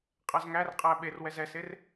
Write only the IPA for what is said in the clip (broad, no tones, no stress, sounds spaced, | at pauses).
qʼ æ z ŋ æ r qʼ æ ɓ e r w ɛ z ɛ s e r